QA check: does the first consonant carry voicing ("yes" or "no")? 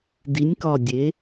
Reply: yes